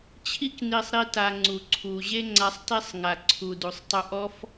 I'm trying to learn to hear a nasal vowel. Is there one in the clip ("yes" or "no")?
no